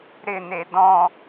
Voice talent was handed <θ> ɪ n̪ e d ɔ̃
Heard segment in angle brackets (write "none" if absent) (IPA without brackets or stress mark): ɾ